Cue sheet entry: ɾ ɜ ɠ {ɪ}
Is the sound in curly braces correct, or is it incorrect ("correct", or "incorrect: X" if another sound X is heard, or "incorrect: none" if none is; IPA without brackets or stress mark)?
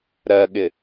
correct